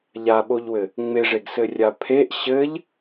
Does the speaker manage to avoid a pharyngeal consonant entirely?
yes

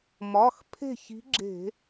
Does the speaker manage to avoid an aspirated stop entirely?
no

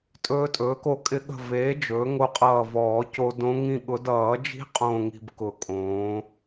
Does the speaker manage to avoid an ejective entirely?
no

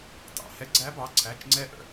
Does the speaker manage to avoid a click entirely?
no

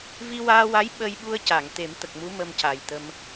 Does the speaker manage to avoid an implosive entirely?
no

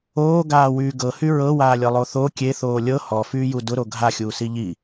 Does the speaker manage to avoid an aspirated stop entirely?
yes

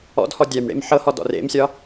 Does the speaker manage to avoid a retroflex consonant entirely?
no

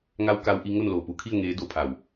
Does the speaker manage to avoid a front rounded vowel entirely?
yes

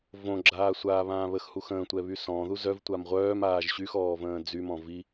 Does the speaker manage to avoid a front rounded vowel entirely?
no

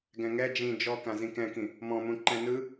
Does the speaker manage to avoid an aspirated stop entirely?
yes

